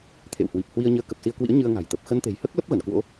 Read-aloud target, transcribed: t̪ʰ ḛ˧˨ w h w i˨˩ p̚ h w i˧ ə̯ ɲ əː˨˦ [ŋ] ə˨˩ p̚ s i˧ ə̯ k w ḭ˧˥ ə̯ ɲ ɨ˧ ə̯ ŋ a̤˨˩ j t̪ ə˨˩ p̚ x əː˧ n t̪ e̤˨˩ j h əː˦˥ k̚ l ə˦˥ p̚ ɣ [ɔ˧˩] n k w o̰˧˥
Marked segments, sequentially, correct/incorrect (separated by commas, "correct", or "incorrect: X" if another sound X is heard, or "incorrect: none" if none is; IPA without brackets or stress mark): incorrect: k, incorrect: ə˧˩